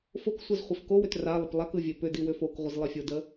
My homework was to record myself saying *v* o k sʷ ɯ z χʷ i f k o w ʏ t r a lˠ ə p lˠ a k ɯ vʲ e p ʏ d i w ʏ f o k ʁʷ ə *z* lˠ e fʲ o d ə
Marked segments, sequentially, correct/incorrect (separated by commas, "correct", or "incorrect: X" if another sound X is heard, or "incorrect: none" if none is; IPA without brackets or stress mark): incorrect: f, correct